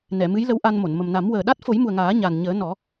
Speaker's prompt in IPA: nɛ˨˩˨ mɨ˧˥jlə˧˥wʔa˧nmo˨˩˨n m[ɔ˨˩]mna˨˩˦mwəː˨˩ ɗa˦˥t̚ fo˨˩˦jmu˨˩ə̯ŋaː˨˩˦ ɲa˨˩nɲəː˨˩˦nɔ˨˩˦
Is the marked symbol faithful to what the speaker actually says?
no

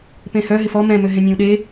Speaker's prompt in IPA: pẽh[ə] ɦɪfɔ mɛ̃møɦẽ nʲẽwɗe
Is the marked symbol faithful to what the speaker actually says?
no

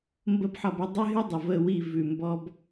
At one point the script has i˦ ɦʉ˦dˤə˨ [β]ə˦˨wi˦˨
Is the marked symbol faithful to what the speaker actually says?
no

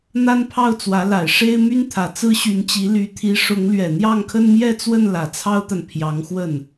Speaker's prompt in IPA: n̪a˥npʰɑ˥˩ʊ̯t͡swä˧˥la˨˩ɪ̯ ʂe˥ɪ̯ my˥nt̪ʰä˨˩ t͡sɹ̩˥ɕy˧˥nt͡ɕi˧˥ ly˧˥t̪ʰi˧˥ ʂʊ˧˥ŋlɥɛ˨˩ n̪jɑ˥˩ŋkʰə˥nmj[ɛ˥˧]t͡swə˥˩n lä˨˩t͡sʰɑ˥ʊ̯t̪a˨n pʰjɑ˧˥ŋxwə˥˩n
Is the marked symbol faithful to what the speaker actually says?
yes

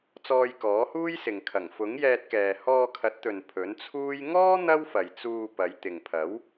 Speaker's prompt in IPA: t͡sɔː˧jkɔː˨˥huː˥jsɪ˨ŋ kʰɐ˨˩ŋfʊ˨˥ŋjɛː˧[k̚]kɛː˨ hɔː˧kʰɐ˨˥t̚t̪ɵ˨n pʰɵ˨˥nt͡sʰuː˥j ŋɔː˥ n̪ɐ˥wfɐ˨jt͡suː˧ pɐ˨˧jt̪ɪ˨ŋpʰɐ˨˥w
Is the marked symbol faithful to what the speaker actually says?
no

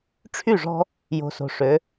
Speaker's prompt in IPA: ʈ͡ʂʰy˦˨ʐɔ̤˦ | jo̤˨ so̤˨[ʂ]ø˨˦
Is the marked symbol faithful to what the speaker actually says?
yes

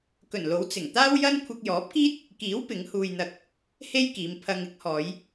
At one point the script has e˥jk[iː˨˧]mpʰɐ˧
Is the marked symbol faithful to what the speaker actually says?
yes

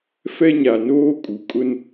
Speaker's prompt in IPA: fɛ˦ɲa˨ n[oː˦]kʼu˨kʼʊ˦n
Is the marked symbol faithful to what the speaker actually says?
yes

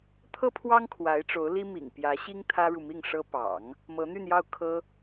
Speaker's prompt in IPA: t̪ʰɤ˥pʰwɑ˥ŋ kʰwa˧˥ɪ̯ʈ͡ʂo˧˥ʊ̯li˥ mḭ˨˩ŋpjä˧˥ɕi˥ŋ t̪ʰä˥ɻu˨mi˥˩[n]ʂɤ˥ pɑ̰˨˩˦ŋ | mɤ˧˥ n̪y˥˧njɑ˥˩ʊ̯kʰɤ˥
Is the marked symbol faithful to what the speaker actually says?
no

